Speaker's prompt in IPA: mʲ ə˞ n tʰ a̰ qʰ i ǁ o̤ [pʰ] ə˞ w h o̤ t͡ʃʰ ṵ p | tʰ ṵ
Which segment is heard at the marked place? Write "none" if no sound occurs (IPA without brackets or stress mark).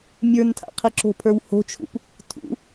pʰ